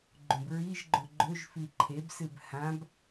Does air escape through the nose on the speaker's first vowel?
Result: yes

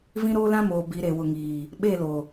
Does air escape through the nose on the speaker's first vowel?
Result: yes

